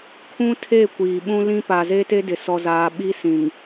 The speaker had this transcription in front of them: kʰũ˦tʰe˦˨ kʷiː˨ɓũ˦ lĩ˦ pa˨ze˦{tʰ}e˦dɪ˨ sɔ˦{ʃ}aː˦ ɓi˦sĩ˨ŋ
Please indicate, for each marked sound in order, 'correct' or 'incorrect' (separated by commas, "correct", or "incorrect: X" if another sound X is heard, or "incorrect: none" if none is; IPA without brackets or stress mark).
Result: incorrect: t, incorrect: z